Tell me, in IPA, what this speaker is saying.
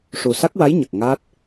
ʂu˨˩sa˦˥k̚wa˧˥j ɲə˨˩k̚ ŋa˦˥t̚

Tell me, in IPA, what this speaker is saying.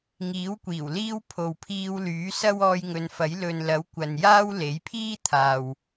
ŋiː˨˥wkʷiː˨˩w liː˥w pʰo˨wpʰiː˧wlyː˨˥ sɐ˥wɔː˧jŋɵ˨˧nfɐ˨˥j lɵ˨nlɐ˨˥wkʷɐ˨njaː˥w le˨˥jpʰiː˥t̪ʰaː˨w

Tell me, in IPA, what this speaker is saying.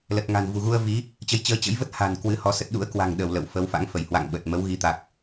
lə˨˩t̚ŋa̤˨˩n vṳ˨˩ɣu˧ə̯ vi˨˦ | t͡ɕə˨˦jt͡ɕəː˨˦t͡ɕə̰˧˥jvə˦˥t̚ ha̤˨˩n kwɨ˧hɔ˧sə˦˥t̚ ɗṵ˧˥ə̯kwa̤˨˩ŋ ɗə˧˩w lə̰˧˨wfə˨˦w fa̰˧˥ŋfə˧˩j hwa̰˧˨ŋɓə˨˩t̚ mə˨˦wɣi˨˦ t̪a˨˩k̚

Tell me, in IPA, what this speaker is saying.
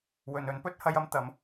wɵ˨n ɵ˨˥npɵ˥t̚ hɐ˧jɐ˨˧m t̪ɐ˨˥m

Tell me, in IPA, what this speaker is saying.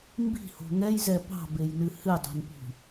mbi̤ho̤ ŋɛjzɛ pɑ̤bejnɨ hɨdˤo̤npi̤

